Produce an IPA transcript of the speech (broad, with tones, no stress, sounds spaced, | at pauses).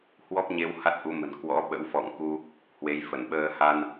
h w ɔ˦˥ p̚ ɲ e˧ w h a˦˥ t̚ ʔ u˨˦ m ə̤˨˩ n k w ɔ̰˧˥ ɓ ə̰˧˥ w f ɔ̰˧˨ ŋ k u˧ | h w e˨˦ j f ə˧˩ n ɓ əː˧ h a˧ n